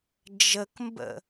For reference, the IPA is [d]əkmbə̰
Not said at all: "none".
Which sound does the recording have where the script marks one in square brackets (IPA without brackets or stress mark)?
d͡ʒ